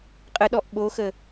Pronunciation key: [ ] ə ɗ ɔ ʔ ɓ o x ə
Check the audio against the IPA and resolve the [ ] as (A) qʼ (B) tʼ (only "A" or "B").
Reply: A